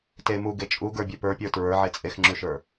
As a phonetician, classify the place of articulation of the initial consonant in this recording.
alveolar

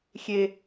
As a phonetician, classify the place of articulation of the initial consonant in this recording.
velar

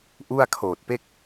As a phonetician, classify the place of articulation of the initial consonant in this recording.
glottal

